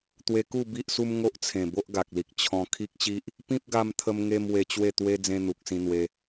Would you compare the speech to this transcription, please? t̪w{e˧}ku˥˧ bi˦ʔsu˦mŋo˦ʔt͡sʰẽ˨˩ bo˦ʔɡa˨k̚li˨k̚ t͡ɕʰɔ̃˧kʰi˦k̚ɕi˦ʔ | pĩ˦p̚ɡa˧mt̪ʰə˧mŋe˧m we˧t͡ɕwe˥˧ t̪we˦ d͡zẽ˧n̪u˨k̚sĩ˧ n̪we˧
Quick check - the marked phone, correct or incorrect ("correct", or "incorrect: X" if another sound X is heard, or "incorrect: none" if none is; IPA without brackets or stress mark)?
correct